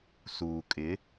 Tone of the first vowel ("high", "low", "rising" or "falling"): low